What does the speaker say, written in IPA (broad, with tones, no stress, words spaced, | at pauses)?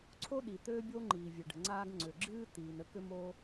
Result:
ǀʰo˦ɗi˩ t̪ø˦bʲo˦ ŋ͡ǃiː˩vʲø˩ɖə̤˩ ŋ͡ǀaː˦ɡ ŋ͡ǀʏ˩ɡ͡ǁɨː˥ t̪iː˩nə˥ kʏ˦moː˦